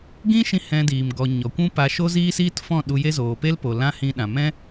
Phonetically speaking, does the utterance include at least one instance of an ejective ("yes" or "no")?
no